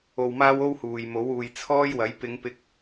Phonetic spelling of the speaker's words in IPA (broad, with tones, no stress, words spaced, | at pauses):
o˧wmaː˥w o˥whuː˨jmo˨˥w uː˨jt͡sʰɔː˥jwɐ˨˥j pɪ˨˧ŋpɪ˧k̚